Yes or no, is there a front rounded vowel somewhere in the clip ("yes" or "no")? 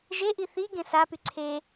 yes